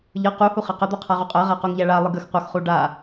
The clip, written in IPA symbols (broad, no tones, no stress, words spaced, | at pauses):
ʎɤ quhuχɛ qəd̪ɤqʰaʁu qʼɜʁaquŋʎæ ɭalˠɯɡ əx qʷɤxχu ɖa